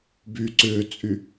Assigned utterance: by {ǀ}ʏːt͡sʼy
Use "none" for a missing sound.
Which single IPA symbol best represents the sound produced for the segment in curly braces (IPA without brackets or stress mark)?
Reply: ǀ